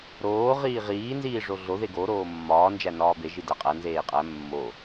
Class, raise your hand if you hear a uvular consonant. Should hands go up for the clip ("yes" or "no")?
yes